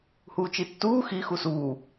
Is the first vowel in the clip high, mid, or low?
high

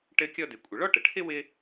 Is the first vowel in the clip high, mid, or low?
mid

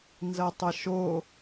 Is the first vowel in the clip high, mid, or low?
low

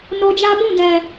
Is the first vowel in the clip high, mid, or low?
mid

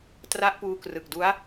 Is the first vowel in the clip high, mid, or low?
low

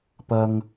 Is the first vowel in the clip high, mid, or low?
low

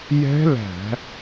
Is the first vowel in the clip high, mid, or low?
mid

